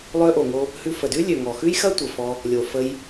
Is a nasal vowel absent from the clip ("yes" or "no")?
yes